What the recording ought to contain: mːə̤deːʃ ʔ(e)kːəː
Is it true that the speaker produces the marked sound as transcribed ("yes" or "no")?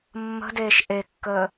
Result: yes